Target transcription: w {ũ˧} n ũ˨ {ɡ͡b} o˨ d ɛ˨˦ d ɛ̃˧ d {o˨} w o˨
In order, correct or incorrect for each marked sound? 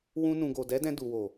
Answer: correct, incorrect: ɡ, incorrect: u˨

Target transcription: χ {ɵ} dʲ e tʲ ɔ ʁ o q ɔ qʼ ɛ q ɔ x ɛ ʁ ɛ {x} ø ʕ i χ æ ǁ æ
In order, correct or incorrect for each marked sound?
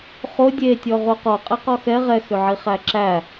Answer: incorrect: o, correct

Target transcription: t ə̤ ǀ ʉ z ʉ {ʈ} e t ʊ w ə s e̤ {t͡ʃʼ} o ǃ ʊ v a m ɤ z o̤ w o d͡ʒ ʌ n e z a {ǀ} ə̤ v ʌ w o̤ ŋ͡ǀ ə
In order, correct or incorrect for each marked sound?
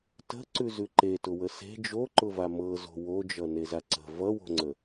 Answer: incorrect: ǃ, incorrect: d͡ʒ, correct

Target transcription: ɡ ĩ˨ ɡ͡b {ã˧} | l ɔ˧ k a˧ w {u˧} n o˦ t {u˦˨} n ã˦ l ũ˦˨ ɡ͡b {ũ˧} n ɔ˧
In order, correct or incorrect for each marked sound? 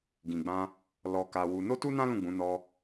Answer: correct, correct, incorrect: u˦, incorrect: ũ˨˦

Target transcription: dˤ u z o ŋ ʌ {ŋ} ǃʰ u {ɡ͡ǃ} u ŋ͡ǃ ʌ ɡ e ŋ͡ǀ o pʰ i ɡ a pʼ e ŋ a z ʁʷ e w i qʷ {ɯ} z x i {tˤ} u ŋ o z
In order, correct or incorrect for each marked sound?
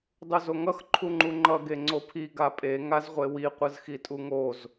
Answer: incorrect: x, incorrect: ŋ͡ǃ, correct, incorrect: tʼ

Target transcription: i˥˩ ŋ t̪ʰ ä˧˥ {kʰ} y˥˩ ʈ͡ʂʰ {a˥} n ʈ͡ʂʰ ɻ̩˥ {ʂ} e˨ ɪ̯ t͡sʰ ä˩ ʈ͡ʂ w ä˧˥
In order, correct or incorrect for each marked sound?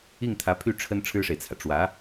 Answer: incorrect: pʰ, incorrect: ə˥, correct

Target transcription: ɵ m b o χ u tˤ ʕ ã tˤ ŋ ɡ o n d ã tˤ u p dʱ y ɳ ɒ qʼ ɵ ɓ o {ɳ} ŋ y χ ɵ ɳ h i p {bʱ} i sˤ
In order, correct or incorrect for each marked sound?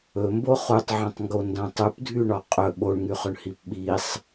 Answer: correct, incorrect: ɓ

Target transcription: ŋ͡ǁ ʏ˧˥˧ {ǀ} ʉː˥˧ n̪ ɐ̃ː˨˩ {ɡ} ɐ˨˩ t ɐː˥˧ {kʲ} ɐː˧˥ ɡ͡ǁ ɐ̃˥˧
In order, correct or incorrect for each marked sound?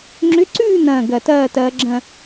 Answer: correct, correct, incorrect: t

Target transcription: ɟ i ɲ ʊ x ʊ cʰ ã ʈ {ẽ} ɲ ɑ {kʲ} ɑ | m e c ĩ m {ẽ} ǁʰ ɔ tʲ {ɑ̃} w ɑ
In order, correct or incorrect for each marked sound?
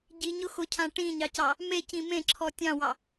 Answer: incorrect: ĩ, incorrect: c, correct, correct

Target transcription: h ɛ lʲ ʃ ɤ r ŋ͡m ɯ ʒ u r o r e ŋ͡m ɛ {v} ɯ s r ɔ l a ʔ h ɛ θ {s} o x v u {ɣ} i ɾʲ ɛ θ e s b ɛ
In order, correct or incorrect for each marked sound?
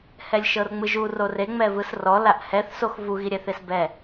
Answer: correct, correct, correct

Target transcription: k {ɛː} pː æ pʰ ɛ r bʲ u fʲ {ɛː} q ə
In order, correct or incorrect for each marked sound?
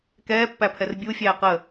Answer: correct, incorrect: æː

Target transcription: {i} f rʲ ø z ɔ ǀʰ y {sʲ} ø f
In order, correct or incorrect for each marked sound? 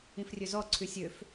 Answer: incorrect: ĩ, correct

